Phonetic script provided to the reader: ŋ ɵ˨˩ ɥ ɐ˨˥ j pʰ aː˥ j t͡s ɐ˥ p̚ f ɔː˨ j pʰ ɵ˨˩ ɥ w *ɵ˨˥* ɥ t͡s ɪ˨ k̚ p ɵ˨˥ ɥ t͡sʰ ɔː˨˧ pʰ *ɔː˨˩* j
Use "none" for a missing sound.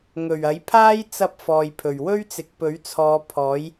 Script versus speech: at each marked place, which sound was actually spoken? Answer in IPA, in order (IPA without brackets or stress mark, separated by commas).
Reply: ɵ˥, ɔː˨˥